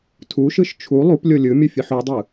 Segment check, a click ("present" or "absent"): absent